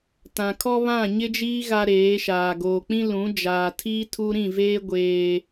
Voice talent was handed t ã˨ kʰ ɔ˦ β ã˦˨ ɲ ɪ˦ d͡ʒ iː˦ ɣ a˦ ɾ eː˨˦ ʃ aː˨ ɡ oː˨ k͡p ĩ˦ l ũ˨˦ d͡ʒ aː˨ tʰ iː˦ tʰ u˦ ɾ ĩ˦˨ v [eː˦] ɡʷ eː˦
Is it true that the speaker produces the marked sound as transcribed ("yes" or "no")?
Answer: yes